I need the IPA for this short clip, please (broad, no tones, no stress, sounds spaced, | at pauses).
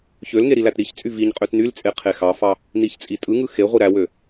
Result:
ç ø l ŋ e ɾ i l æ t ɾ i ç t͡sʼ y v i ɲ qʼ ø t n y l t͡sʼ e qʰ e x ɑ f ɑ | n i ç t͡sʼ i tʼ ɯ ŋ ɯ x e ʁʷ i ɾ æ w ø